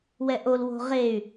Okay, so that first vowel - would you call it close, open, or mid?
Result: mid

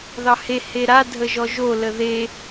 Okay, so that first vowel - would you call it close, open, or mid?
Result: open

